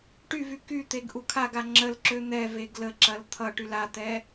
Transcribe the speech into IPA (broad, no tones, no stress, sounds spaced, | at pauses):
ʈ y v y k y t̪ e ɡ ʔ u kʰ a ɡ a ŋ͡ǁ ə l ǁ ø n̪ ɛ v e ɡ l ə ǁ ɐ l t̪ʰ ʌ ʈ y l a t̪ ɛ